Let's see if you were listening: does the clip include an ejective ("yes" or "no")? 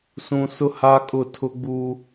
yes